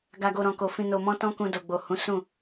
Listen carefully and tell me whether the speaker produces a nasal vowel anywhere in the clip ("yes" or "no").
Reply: yes